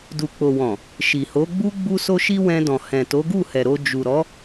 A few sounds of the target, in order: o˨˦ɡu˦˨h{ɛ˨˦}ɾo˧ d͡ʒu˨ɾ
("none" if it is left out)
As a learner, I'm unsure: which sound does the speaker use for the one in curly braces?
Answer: ɛ˨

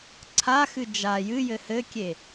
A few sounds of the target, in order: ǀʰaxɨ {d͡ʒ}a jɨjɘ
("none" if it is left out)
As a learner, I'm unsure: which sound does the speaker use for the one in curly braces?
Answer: d͡ʒ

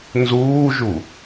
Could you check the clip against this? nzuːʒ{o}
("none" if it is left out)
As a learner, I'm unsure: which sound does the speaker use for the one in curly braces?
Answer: u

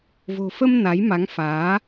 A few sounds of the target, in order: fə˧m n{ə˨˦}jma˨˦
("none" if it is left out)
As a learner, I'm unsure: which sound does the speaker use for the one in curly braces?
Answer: a˨˦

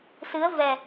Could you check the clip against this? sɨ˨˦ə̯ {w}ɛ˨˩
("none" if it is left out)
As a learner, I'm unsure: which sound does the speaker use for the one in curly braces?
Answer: v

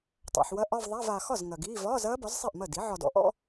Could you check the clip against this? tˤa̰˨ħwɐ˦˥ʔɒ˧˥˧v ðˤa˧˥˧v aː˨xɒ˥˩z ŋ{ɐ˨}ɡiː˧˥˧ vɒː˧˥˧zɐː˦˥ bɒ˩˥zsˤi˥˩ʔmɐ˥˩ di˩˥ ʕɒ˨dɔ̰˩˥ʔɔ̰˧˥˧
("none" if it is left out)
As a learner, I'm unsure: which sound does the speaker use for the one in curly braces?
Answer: ɐ˨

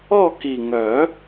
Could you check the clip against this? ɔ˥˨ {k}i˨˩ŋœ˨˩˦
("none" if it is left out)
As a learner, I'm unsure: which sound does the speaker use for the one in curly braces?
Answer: k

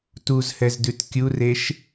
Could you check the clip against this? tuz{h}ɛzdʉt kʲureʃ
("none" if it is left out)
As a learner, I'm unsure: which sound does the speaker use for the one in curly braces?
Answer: h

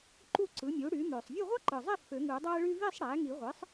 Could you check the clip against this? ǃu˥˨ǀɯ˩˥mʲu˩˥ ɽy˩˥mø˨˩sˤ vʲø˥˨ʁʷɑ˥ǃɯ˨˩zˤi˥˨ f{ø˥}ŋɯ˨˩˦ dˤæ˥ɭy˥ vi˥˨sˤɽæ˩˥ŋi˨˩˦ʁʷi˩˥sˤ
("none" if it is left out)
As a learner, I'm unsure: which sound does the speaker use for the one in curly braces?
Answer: ø˨˩˦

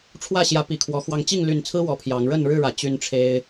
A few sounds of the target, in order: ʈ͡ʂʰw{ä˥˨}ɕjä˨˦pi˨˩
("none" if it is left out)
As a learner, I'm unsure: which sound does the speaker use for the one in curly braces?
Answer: ä˥˨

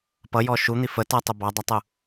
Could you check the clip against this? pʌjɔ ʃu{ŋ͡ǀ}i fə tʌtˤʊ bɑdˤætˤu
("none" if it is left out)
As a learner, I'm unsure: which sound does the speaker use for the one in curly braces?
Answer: n̪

